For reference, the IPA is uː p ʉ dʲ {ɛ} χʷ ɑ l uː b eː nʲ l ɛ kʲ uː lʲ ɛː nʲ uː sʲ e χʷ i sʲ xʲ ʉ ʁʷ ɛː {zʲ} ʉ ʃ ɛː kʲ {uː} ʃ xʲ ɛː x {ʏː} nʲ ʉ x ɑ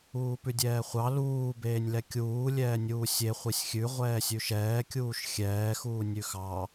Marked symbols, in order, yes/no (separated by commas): no, no, yes, no